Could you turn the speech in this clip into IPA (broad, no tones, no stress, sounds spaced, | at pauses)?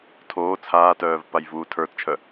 tʰ oː t͡sʰ aː t œː v p a j v uː tʰ ə˞ t t͡ʃʰ œ